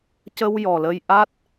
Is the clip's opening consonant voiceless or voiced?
voiceless